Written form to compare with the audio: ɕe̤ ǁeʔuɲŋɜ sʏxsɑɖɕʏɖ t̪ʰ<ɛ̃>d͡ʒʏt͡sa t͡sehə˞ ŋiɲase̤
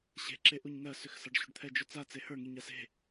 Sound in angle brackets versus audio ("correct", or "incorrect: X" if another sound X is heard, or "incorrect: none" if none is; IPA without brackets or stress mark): incorrect: ɛ